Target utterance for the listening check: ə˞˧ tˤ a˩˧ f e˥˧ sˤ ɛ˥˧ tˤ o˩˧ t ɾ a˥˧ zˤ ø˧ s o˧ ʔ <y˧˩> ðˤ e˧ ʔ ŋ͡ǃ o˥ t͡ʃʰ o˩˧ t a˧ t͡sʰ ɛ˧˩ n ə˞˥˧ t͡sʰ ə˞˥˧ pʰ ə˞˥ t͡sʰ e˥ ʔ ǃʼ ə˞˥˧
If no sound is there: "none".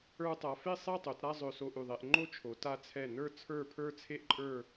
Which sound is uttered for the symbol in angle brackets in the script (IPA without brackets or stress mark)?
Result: y˧˩